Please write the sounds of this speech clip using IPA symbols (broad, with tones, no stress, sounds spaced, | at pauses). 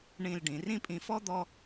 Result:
ɳ ĩ˧ l ɖ ĩ˩˧ r ĩ˥ pʼ ĩ˧ f ɔ˥ d̪ ɔ˥